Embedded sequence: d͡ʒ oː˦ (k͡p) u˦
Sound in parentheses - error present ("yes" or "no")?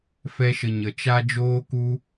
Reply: yes